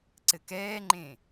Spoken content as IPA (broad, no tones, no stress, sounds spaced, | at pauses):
ǀ ɘ k ɛː ŋ͡ǃ ẽ